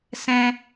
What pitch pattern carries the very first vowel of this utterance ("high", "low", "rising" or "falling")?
high